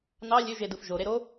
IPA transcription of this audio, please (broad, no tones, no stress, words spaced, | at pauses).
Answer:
nɑ lʲøʒedɯf ʒoɾe ɾo